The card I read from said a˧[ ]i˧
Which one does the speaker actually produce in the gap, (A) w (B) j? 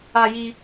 B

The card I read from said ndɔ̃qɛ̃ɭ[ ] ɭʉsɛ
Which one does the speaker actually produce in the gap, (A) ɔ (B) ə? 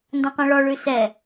A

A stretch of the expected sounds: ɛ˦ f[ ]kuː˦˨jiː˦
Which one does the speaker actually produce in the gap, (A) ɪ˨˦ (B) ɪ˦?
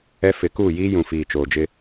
A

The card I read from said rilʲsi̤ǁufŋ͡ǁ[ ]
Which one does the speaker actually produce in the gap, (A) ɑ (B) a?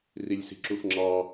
A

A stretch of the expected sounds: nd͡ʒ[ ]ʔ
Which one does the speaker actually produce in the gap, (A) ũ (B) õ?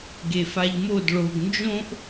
B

